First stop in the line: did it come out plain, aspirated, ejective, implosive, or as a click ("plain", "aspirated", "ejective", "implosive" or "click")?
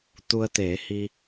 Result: plain